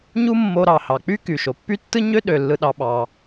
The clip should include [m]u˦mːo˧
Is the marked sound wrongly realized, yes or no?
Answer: yes